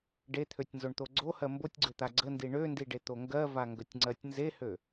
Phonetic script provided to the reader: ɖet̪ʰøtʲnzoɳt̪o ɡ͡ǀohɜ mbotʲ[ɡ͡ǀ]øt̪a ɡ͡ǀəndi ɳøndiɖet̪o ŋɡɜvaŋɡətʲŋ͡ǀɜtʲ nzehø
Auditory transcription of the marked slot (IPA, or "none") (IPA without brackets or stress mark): ɡ͡ǀ